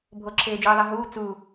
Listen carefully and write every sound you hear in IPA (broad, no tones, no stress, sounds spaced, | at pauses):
bʱ o ǁʰ eː d͡ʒ ɯː ðˤ ɛ ɦ uː t͡s u